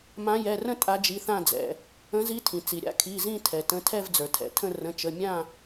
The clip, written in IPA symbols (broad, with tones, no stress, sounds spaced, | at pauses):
m ã˨˦ j ɛ˩˧˩ r ə̃˦˨ tʼ a˨˦ d͡ʒ i˩˧˩ θ ã˦˨ d͡z ɛ̰˩ | ə̃˨˦ z i˨˦ tʰ ĩ˩ t͡s i˩ ɾʲ a̰˨˦ kʰ i˩˧˩ z ĩ˦˨ tʰ ɛ˩ t ə̃˩˧˩ tʰ ɛ˦˨ v d͡z ə˞˩ tʰ ɛ̰˩ tʰ ə̃˦˨ r ə̃˩˧˩ t͡ʃ ə˩˧˩ mʲ ã˦˨